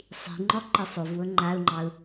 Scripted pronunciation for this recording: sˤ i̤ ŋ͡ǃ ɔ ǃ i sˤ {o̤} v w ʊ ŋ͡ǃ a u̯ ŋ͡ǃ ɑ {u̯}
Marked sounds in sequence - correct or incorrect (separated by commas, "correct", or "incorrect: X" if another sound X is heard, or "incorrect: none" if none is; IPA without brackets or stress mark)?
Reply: incorrect: o, correct